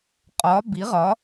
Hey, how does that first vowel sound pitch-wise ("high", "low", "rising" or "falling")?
rising